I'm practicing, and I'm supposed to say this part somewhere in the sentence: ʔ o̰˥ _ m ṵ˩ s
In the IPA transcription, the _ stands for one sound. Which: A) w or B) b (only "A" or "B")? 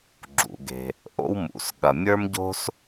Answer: A